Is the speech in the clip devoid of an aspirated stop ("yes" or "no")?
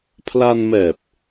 no